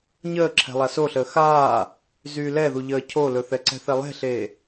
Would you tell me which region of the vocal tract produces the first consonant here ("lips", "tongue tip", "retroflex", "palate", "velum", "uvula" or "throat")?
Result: palate